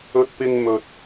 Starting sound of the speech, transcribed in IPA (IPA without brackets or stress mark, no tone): ɵ